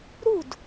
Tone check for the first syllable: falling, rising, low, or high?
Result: falling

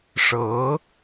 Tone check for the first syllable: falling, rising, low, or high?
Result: rising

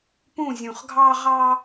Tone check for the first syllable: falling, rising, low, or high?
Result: falling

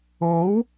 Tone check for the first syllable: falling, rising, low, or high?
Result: rising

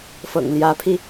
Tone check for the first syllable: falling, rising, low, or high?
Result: low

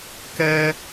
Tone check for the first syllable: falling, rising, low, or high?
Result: high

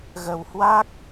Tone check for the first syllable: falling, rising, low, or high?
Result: low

